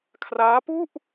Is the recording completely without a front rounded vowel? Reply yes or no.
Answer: yes